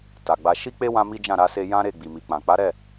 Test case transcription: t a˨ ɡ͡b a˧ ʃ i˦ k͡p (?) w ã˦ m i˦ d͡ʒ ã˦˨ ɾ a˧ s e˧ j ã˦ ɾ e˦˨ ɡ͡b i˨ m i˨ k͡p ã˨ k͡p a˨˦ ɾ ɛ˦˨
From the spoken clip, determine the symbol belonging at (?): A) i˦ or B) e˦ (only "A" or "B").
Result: B